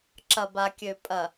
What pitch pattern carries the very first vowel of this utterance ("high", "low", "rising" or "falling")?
low